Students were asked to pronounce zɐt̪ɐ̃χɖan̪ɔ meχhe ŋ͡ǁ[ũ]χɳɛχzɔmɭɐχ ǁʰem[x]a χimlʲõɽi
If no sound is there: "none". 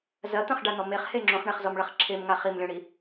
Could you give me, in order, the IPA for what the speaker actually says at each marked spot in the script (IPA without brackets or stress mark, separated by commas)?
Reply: õ, ŋ